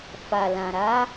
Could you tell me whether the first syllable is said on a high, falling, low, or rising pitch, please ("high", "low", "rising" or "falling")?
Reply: low